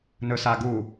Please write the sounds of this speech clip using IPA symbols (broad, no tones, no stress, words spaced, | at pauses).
nɵsaɡu